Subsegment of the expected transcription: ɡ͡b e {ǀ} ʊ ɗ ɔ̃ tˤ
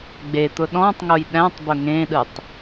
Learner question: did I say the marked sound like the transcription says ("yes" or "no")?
no